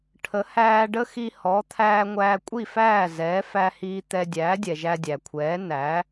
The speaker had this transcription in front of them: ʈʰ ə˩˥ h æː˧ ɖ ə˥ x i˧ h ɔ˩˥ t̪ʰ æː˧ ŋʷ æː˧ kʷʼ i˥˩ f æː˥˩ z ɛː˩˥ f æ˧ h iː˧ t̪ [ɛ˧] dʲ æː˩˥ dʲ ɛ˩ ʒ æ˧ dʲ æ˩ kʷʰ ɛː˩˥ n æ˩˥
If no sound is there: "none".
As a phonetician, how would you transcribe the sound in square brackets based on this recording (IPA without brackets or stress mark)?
ɛ˧